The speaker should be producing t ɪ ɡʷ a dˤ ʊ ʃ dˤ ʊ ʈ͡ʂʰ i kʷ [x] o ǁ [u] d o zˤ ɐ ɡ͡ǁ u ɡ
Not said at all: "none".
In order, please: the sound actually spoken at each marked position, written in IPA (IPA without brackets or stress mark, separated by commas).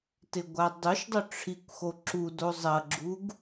x, u